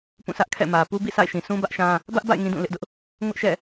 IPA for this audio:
pũ˦˨sä˦ʔkʰɛ̰˦˨mä˨ pu˦bḭ˦˨ sa̰˦˨ɪ̯ʃĩ˨ sʰũ˦bä˦ʔ ʃã˦ | bä˦ʔba̰˦˨ɪ̯ ŋĩ˦dũ˦˨lɪ˦ʔdʊ˦ʔ | ŋʊ˦ʔʃɛ̰˦˨

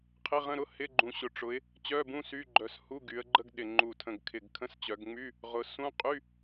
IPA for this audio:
qʰɪ˧˥˧ʁə̃˧˥˧ ɾʊ˧˥˧ hɪ˧˥˧ɡ͡ǃũ˨˩ ɕʊ˨˩ʈ͡ʂʊ˩˧ɪ̯ | t͡ɕœ˧˥˧bũ˧˥˧ sy˧˥˧ɡ͡ǃœ˨˩s hu˧˥˧ɡy˩˧ə̯ɡ͡ǃə˧˥˧ɡɗɪ˨˩ ŋ͡ǃu˨˩tʰə̃˨˩ɡ kʰɪ˨˩ɡkʰə̃˧˥˧st͡ɕœ˩˧ɡŋ͡my˧˥˧ | ʁʊ˩˧ sũ˧˥˧ qʼy˧˥˧

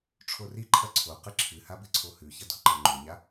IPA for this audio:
ʈ͡ʂʰoriǃʰɐ ǀʰo qɨǁʰɨha bɨǀʰohʉçɐ do̤ǃɐŋ͡ǃuɲa

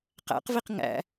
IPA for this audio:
qæ̰qviq ŋæ̰

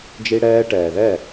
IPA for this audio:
d͡ʒi˧ɽɛː˧ ʈɛː˩ðɛ˥˩

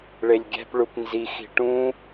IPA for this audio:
ɭelʲɡʲæ̤p ɭupnzi xi̤ʈũ

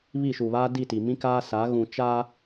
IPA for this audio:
βi˦˨ʃu˨βaː˦ di˦˨ti˨ mĩ˦kaː˦sa˨˦ ɣũ˨t͡ʃa˦

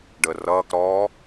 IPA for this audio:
ɖəːrʌːk ɾɔ

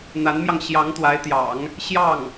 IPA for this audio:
n̪a˧˥nmjɑ˧ŋ ɕjɑ˧˥ŋt̪wa˧˥ɪ̯t̪jɑ̰˨˩˦ŋ | ɕjɑ˥˩ŋ

